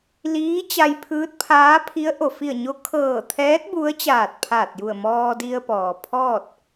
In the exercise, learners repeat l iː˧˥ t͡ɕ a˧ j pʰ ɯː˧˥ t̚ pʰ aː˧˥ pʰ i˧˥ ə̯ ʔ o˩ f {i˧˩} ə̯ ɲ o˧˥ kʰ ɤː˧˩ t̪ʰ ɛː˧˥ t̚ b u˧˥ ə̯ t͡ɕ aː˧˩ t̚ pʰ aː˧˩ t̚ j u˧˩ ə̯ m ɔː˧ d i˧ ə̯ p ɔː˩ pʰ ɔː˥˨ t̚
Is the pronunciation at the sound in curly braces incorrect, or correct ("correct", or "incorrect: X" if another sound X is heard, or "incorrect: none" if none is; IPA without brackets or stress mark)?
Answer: correct